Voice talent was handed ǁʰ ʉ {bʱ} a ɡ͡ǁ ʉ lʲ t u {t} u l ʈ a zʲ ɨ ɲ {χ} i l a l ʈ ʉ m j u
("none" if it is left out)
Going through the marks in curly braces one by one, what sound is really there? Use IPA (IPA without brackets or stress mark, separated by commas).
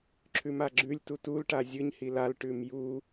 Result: m, t, h